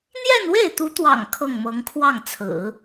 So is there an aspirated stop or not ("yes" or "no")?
yes